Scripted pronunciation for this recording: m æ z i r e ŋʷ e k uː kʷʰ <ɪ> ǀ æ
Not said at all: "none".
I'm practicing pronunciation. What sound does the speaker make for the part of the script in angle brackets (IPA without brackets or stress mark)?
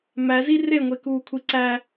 i